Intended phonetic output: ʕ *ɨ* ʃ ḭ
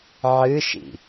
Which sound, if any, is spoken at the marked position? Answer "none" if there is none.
ɨ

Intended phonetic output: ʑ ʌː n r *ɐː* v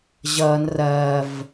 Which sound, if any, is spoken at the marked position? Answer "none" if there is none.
ɐː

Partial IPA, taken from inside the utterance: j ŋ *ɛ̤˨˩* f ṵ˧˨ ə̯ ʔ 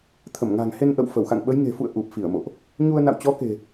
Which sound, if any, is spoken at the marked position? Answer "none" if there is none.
e̤˨˩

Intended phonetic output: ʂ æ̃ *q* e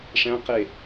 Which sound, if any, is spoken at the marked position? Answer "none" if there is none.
q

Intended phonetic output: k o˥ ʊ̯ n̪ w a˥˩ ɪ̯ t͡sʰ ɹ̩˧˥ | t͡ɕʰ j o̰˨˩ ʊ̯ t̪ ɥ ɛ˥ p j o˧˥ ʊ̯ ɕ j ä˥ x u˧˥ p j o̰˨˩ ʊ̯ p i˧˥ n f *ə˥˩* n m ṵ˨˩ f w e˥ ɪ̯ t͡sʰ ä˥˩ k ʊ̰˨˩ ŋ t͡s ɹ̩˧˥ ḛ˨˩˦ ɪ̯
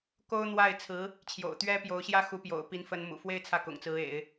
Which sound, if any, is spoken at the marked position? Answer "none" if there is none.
ə˧˥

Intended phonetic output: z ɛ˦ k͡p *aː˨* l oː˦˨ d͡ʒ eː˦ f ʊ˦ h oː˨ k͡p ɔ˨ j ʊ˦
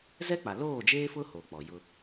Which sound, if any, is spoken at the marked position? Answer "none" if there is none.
a˨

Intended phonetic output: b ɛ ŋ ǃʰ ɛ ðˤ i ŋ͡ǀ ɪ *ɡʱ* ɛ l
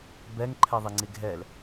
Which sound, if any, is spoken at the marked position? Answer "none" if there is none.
ɡʱ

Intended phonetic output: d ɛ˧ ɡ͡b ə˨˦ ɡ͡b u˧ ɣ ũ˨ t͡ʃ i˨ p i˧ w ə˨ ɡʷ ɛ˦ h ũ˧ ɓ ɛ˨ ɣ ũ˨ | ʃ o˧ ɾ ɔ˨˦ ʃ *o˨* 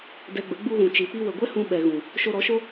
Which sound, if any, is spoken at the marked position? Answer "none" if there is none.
o˦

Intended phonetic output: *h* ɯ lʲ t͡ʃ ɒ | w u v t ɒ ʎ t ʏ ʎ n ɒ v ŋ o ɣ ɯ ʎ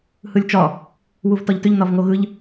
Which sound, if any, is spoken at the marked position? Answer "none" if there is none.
h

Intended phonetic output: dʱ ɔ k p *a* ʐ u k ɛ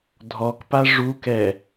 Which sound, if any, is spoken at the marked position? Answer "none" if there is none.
a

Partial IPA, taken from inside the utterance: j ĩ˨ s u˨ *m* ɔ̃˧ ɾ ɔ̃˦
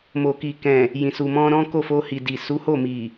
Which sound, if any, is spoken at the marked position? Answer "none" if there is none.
m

